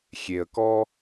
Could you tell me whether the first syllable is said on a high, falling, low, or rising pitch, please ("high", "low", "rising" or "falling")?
low